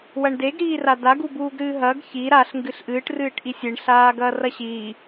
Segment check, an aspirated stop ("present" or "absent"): absent